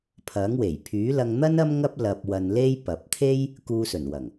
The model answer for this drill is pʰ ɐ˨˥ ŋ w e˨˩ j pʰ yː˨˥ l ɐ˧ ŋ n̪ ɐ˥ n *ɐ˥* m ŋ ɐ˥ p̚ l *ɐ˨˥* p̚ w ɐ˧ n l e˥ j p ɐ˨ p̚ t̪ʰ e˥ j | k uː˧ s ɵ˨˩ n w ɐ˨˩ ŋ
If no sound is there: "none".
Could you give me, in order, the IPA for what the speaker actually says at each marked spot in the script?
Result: ɐ˥, ɐ˧

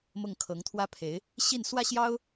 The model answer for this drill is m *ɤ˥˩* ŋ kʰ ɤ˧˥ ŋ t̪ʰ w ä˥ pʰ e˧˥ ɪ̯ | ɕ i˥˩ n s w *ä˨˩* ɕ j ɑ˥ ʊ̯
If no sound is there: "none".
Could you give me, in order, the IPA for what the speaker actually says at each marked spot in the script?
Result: ɤ˥˩, ä˥

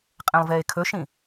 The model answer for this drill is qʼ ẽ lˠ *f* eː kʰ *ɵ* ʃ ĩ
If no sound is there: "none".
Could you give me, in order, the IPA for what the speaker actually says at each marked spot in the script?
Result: v, ɵ

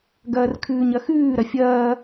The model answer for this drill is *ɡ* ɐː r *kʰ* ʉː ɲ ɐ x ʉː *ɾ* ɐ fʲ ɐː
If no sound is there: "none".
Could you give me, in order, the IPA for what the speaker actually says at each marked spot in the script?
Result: ɡ, kʰ, ɾ

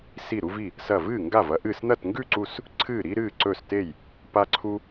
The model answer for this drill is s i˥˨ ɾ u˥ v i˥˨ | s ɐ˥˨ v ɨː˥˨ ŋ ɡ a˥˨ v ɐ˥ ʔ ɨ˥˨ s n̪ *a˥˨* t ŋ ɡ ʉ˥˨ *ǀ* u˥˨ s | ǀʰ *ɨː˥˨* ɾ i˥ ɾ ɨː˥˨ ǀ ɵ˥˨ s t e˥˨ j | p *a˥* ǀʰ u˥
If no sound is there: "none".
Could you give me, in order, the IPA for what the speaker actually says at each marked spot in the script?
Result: ɐ˥˨, ǀ, ɨː˥˨, a˥

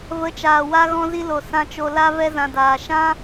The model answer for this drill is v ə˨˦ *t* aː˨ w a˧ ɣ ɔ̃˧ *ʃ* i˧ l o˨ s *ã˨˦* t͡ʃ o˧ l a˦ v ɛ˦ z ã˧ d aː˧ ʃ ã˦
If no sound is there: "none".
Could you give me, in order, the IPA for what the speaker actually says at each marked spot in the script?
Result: t͡ʃ, z, ã˧

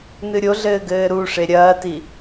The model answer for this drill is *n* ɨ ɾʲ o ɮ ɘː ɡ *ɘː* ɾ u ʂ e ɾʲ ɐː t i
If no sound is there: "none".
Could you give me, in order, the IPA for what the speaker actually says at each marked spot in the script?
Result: n, ɘː

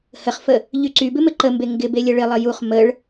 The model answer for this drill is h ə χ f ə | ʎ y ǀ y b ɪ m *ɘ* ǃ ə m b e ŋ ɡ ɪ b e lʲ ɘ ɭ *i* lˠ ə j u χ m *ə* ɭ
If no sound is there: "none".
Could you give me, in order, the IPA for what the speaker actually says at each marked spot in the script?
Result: ɘ, ɪ, ə

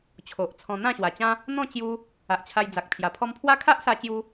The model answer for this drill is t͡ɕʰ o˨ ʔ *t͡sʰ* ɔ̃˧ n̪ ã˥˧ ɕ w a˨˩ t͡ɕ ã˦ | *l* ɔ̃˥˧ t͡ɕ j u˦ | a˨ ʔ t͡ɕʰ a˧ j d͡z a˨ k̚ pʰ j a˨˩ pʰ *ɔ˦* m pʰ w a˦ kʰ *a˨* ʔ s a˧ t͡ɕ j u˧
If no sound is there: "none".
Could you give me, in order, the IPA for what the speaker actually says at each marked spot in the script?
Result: t͡sʰ, n̪, ɔ˦, a˦

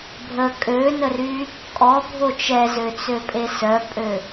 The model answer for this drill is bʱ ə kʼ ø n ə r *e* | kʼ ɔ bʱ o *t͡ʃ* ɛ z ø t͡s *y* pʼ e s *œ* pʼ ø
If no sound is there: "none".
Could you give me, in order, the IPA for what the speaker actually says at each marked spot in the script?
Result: y, t͡ʃ, ø, œ

